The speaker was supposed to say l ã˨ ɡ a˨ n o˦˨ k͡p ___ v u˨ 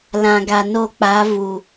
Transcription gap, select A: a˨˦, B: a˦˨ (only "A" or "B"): A